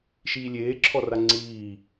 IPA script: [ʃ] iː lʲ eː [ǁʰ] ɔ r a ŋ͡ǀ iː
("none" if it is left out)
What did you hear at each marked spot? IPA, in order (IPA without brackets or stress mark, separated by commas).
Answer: ʃ, ǁʰ